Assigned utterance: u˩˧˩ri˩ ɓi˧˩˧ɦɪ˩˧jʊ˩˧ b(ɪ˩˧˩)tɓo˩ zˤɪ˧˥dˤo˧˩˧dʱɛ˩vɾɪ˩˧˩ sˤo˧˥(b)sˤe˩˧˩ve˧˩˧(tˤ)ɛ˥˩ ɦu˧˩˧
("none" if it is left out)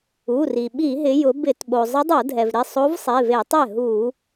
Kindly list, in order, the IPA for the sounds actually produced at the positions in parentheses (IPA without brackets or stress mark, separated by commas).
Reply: ɪ˧˩˧, v, tˤ